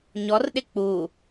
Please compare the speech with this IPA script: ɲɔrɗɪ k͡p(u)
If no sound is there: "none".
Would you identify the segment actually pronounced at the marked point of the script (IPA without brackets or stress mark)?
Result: u